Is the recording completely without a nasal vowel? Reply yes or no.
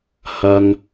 yes